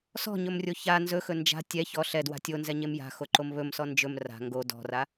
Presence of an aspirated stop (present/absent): absent